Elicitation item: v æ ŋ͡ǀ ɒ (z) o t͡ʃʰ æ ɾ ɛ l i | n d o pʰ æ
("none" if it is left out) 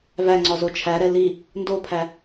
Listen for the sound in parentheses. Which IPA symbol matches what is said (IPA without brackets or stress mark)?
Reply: z